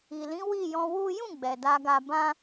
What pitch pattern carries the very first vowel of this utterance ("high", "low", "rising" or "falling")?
low